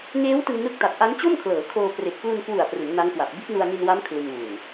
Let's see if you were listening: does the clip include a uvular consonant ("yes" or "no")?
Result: no